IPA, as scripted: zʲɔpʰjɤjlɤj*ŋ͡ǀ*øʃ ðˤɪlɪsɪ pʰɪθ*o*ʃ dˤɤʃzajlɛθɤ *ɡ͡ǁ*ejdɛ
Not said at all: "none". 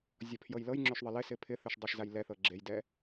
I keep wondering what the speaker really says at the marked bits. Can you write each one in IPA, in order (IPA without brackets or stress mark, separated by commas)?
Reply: ŋ͡ǁ, ɵ, ɡ͡ǁ